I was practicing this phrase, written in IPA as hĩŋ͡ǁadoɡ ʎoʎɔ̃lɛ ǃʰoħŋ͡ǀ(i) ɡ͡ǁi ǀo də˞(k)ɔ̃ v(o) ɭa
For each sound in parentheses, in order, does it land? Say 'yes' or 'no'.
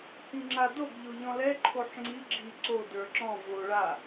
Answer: yes, no, yes

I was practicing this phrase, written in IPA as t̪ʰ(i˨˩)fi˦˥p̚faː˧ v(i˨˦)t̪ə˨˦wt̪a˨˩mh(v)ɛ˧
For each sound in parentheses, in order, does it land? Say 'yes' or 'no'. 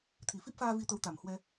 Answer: yes, no, no

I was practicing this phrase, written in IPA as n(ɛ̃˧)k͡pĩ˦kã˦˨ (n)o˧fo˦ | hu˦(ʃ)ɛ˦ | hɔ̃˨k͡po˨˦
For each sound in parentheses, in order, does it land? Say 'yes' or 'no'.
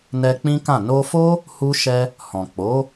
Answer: no, yes, yes

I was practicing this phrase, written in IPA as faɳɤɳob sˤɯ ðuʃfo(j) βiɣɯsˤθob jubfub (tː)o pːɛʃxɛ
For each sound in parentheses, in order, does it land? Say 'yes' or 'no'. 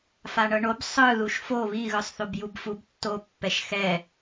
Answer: no, yes

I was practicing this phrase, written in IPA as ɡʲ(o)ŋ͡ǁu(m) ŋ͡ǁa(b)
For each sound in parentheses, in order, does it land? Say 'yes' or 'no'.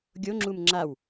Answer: yes, yes, no

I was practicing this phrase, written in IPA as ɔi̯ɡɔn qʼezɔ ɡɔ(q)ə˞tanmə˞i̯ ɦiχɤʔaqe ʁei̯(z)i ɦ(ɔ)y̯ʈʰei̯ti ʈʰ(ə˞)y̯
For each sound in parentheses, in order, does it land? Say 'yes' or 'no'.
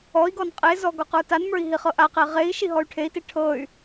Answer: yes, no, yes, no

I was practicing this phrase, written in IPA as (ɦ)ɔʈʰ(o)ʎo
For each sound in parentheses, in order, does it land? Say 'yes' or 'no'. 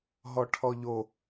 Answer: yes, no

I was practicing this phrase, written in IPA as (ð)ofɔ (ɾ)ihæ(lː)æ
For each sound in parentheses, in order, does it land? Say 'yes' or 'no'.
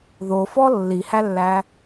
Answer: yes, no, yes

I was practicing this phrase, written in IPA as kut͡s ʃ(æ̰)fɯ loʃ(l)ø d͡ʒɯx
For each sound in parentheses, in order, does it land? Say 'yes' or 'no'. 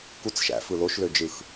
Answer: yes, yes

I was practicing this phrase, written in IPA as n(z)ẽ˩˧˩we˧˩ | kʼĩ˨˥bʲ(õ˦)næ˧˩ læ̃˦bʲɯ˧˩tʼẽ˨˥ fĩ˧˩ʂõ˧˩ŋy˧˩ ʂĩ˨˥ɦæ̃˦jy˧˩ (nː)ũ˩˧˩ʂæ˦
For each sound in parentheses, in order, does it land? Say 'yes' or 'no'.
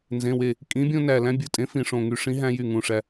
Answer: yes, yes, no

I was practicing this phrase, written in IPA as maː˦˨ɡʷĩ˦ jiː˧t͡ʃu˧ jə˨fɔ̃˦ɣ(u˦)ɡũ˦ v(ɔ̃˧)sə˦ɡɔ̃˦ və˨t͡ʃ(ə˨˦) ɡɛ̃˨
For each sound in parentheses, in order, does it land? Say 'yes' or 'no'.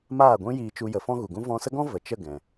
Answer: no, yes, no

